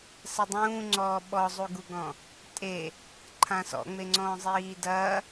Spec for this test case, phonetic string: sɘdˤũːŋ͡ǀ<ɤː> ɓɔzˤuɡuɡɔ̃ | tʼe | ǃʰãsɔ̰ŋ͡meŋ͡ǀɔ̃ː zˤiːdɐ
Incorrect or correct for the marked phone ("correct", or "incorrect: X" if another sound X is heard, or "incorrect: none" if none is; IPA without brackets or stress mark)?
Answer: incorrect: ɔː